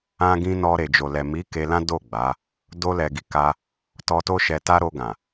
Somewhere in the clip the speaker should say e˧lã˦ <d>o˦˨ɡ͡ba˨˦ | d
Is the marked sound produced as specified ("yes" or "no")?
yes